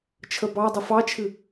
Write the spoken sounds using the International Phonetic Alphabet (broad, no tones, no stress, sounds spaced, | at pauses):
t͡ʃʰ ə b ɑ dˤ ə f ɑ t͡ʃʰ ɨ